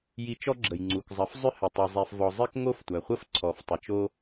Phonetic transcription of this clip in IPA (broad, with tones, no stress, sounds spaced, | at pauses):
j i˧ t͡ʃ ɔ˦ ɡ͡ǁ ə˨ j ŋ͡ǀ u˨ k zˤ ɐ˨˦ f zˤ ʏ˦ h ɘ˨ tˤ i˨ zˤ ɛ˧ f v ɔ˧ zˤ ɘ˦ k ŋ o˦ f tʷ æ˨ χʷ ə˦ f ǀʰ ɔ˨ f tˤ ʏ˨ t͡ʃ o˦